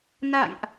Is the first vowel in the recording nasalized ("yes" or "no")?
no